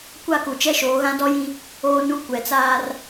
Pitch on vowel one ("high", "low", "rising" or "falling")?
falling